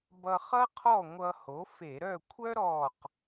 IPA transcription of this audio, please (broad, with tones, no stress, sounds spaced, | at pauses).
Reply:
b ʌ˧ χ ʌ˥ qʰ ɔ˥˨ ŋʷ ʌ˧ h o˩˥ f e˧˩˧ ɾ œ˥˨ kʷʰ œ˥ ɾ ɔ˧˩ q